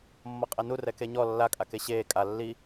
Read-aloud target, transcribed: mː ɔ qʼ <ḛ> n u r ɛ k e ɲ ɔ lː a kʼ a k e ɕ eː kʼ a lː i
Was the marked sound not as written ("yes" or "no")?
yes